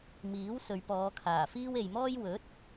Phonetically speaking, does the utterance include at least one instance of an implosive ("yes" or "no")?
no